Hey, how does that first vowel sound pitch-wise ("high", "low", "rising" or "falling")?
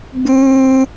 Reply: high